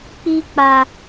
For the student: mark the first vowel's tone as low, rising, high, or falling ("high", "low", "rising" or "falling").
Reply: high